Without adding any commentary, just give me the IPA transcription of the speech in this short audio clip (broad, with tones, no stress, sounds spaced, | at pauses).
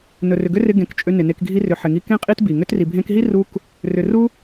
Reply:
n ɵ˨ r ʏ˨ ɡ ʏ˦ r ɪ˧ ɡ ẽ˨ k t͡ʃʼ ʏ˧ n ɪ˨ n e˧ k ɡʱ i˧ r ʏ˨ ħ ɪ˨ ŋ i˧ k ẽ˦ qʼ i˦ t b i˨ ŋ ʏ˧ t r i˨ bʱ ẽ˧ k ɦ i˦ r u˦ k | r ʏ˨ r u˦